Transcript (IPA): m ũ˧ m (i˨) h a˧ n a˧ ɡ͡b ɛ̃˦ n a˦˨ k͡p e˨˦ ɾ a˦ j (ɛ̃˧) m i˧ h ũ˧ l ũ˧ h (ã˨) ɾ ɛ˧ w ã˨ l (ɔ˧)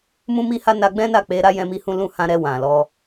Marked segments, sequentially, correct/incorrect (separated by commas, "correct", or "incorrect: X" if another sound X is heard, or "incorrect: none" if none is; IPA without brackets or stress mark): incorrect: i˧, correct, incorrect: ã˧, correct